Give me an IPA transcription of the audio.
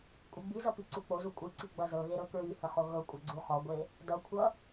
kʷʼɨɡ͡bizʌ piǀuk͡pozu kʷʼɨǀi ɡ͡bʌzɤɣe ɾɤkɹihə χoɣɤkʷʼʌ ɡ͡ǀuχɔɡʷe | dʌkʷʰʌ

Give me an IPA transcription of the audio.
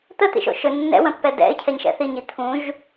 t̪ət̪ḭʃo̰ ʃɵ nːɛ̰wə̃pːɛ dɛ̰ɪ̯cʰɛɲʃɛ̰ θiɲi t̪ʰũʒ

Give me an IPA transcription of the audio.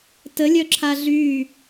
təlʲœǁʰa ɮy

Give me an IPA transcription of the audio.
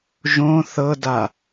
ʒõ θɤda

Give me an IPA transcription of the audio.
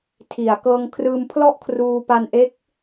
tʰi˨˩a̯ kɤː˧ŋ kʰrɯː˧mpʰlɔ˥˩ʔkʰruː˧ pa˧nʔe˦˥k̚

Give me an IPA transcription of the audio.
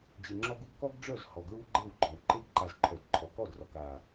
d͡ʑe˨ŋ͡ǁɔ˧ɡu˧ɡ kɔ˦ɡɖ͡ʐœ˦˨z hɔ˨ɡɹu˦ɡ͡ǃe˦˨wɡ͡ǃɔ˨w ǃe˧ɡǃa˨z ǃʰœ˨dǃʰɔ˨kɔ˦˨drɔ˨k a˨

